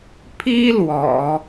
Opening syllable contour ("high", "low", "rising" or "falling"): high